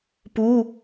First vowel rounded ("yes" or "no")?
yes